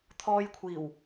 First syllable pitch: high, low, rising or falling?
high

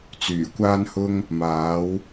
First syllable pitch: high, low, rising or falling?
low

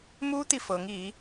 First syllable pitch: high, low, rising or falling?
high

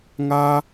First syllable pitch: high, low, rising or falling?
high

